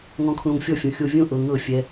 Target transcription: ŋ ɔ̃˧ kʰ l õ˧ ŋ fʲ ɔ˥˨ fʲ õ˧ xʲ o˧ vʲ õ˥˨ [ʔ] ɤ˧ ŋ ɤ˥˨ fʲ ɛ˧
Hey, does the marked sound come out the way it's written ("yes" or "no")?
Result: yes